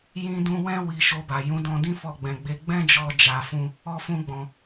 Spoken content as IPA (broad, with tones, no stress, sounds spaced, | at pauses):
j ĩ˧ d ũ˧ w ɛ̃˦ w i˧ ʃ o˧ b a˨ j ũ˨˦ d ɔ̃˧ d ĩ˦ f ɔ˧ ɡ͡b ɛ̃˨ ɡ͡b e˧ ɡ͡b ɛ̃˦ d͡ʒ ɔ˧ d͡ʒ a˧ f ũ˦ | ɔ˧ f ũ˧ ɡ͡b ɔ̃˨